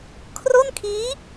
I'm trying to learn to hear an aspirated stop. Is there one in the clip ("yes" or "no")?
yes